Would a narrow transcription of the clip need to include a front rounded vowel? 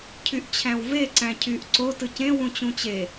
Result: yes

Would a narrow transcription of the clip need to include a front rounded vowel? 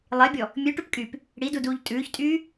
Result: yes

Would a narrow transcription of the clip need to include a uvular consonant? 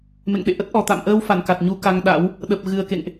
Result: no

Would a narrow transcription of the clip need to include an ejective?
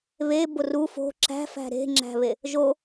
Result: no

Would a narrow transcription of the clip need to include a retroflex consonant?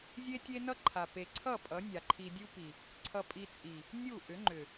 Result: no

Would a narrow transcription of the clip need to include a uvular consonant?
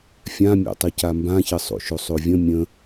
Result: no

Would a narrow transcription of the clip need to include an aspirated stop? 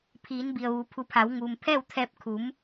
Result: yes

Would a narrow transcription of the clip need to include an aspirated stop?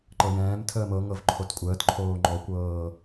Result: yes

